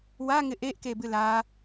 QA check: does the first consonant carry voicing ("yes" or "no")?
yes